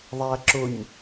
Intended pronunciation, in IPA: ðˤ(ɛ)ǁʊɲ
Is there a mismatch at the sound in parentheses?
yes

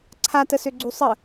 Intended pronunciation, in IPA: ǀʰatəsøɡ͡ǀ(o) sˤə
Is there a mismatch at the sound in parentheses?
yes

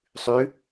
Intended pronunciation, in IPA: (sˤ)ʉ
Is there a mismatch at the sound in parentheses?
no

